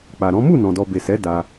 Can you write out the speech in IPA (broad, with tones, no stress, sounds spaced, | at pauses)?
k͡p a˨ ɾ ɔ̃˨˦ m u˦˨ n ɔ̃˨ d ɔ˨ b e˨ s ɛ˨˦ d a˦